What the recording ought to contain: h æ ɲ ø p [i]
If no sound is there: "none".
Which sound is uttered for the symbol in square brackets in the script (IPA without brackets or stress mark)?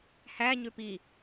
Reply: i